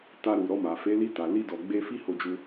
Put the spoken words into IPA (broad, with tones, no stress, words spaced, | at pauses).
ta˧ɾu˨ ɾɔ˧ma˨fe˨˦ li˧ta˨li˧dɔ˨ ɡ͡be˧fi˦ ho˧d͡ʒu˧